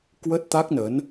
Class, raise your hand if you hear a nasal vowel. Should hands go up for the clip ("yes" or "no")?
no